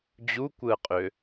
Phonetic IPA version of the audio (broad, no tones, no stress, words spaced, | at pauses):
d͡ʑukʷɯə̯qʼø